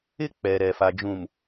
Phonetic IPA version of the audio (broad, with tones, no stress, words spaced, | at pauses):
ɪ˦ k͡pɛ˨ ɾɛ˨fa˨d͡ʒũ˨m